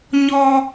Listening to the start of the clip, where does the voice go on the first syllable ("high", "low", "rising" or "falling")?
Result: high